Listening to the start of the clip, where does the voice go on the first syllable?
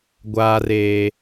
low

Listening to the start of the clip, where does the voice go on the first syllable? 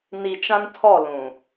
low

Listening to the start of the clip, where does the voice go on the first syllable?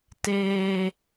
low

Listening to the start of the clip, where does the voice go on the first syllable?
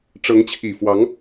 rising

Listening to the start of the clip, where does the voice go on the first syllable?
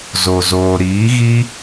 low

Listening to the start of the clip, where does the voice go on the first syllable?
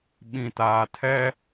low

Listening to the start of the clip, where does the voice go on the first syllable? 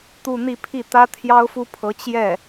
falling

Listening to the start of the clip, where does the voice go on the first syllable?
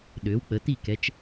rising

